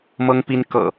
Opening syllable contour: high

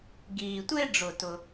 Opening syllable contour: low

